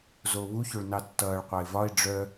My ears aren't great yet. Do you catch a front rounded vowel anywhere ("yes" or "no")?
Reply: yes